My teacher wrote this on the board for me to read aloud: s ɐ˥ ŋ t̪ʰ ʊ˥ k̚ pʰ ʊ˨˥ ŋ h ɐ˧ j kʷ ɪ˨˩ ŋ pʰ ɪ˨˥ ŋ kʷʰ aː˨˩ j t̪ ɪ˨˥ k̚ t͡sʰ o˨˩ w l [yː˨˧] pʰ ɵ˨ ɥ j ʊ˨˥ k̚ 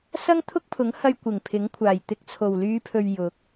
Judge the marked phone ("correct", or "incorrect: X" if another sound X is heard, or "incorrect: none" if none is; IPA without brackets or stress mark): correct